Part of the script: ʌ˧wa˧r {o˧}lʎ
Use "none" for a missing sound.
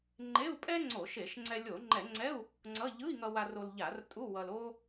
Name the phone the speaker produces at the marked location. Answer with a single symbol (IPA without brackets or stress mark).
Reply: o˧